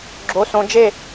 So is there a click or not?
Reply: yes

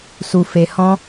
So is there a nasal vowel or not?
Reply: yes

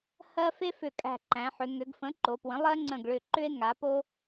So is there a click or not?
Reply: yes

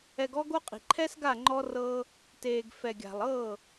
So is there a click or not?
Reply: yes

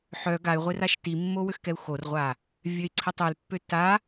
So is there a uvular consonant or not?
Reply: yes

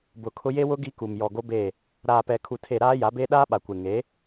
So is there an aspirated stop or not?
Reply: yes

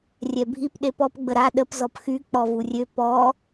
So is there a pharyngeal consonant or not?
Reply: no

